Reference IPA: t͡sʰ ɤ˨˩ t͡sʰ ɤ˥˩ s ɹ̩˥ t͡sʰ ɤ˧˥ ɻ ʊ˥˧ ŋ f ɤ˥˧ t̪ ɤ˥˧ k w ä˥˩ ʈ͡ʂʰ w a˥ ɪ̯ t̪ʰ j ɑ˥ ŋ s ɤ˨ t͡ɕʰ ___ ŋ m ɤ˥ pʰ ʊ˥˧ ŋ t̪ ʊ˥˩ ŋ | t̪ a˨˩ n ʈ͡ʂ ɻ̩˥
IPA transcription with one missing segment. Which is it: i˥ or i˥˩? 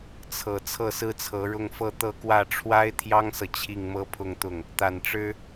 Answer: i˥˩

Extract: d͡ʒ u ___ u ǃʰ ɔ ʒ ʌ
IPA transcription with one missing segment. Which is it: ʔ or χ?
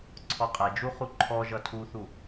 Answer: χ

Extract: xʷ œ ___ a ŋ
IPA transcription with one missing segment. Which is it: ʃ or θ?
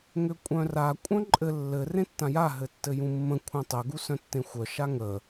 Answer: ʃ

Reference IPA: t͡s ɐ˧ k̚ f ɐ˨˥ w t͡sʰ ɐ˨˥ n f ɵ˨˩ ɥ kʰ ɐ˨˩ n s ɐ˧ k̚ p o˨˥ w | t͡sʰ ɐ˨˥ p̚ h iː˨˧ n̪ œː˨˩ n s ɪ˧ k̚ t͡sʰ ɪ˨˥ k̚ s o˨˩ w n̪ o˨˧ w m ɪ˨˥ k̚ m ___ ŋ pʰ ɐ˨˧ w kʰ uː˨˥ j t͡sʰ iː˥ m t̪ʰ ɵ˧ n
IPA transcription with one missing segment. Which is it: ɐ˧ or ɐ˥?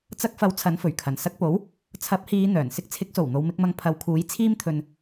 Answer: ɐ˧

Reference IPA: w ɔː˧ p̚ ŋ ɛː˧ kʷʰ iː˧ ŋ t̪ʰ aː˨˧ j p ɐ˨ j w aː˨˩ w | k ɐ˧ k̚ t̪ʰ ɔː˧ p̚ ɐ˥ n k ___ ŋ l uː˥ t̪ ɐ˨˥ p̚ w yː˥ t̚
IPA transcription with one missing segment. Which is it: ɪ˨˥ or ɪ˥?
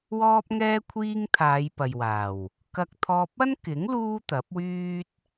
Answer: ɪ˨˥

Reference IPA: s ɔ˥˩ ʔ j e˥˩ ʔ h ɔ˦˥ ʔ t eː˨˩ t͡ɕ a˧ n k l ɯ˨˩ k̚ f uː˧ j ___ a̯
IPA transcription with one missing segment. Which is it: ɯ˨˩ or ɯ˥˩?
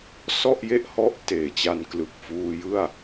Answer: ɯ˥˩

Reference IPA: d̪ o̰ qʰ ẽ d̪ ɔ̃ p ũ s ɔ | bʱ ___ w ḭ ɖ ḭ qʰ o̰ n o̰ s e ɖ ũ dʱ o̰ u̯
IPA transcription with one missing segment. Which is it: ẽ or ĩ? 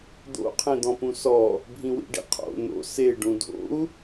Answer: ĩ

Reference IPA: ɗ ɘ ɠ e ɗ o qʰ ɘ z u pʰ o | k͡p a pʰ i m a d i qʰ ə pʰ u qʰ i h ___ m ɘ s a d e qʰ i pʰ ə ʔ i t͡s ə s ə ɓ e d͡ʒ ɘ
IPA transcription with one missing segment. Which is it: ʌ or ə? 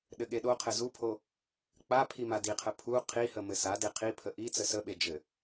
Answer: ə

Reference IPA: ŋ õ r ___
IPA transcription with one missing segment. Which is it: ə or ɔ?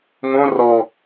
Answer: ɔ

